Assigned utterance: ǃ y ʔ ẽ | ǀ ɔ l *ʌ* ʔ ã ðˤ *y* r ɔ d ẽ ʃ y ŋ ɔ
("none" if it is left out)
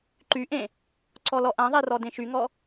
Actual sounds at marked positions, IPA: ɔ, e

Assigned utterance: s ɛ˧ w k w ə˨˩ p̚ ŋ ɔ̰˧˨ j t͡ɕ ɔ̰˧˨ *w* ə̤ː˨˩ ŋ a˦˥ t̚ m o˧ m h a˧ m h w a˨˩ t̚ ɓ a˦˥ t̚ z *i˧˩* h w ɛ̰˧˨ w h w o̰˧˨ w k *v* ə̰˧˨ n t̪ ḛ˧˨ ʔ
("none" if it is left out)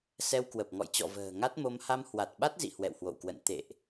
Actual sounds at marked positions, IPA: v, ḭ˧˨, w

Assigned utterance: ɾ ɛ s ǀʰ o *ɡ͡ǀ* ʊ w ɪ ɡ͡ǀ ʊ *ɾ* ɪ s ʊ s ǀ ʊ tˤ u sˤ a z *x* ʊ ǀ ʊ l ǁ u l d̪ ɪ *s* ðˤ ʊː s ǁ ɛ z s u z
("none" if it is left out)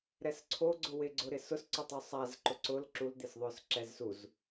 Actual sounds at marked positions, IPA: ɡ͡ǀ, ɾ, ǃ, s

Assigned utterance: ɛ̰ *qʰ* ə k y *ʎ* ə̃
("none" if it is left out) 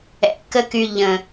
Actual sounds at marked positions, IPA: k, ʎ

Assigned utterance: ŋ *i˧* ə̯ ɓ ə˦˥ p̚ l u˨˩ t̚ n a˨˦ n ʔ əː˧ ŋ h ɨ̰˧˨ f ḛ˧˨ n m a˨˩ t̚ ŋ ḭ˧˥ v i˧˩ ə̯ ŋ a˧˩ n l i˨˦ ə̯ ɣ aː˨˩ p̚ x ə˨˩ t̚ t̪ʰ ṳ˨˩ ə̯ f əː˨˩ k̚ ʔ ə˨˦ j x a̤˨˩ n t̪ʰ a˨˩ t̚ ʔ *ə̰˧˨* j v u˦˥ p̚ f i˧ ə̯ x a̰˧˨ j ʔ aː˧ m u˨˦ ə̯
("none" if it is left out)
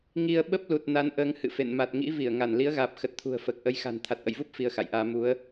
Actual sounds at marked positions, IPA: i˧, ə̰˧˨

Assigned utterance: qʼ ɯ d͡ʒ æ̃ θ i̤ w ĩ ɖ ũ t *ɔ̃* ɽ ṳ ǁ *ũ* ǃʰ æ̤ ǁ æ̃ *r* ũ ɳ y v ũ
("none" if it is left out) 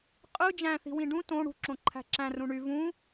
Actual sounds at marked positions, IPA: õ, õ, r

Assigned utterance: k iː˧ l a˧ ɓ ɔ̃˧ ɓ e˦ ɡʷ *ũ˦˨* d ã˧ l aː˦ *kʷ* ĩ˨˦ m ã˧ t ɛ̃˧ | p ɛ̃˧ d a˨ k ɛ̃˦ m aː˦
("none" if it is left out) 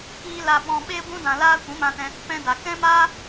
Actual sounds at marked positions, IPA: ũ˦, kʷ

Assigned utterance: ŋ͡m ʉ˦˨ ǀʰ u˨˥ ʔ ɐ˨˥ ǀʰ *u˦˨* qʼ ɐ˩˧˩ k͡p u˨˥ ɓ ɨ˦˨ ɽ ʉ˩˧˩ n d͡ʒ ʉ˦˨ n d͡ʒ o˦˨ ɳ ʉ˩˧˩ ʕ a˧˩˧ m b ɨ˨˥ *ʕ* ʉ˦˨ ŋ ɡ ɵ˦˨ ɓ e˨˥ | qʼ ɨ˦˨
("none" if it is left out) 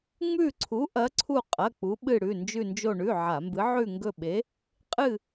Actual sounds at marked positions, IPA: u˦˨, ʕ

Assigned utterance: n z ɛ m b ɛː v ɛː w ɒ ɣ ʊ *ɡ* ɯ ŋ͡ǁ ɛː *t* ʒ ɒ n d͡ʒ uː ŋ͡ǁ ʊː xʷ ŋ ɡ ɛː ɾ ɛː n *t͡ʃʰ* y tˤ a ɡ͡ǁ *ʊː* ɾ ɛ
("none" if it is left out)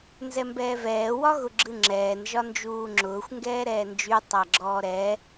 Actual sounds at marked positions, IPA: ɡ͡ǁ, n, d͡ʒ, ɔː

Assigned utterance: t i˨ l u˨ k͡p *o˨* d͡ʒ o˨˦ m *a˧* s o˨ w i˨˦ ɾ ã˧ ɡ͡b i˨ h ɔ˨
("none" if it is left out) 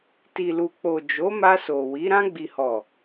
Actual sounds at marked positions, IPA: o˨, a˧

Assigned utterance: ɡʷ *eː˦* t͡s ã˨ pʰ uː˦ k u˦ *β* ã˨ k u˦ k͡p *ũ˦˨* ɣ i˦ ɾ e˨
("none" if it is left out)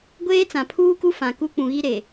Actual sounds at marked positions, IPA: eː˦, f, ũ˨

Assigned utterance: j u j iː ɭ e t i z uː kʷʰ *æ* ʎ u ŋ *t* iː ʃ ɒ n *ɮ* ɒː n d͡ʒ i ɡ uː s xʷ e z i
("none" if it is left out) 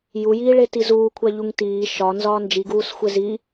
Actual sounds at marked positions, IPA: æ, t, z

